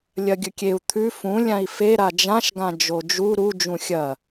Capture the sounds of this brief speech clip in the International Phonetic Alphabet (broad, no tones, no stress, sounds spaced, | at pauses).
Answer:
lʲ ɐ ɡʲ ɵ kʲ e u̯ t̪ʰ ʉ f ũ lʲ ã i̯ f e ɾ a d͡ʒ ã ʃ ɡ ã d͡ʒ o d͡ʒ u ɾ u d͡ʒ ũ xʲ ɐ